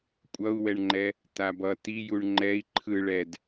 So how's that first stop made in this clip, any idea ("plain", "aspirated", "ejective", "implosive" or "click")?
ejective